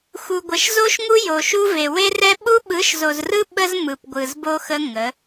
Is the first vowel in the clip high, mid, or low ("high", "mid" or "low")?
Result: high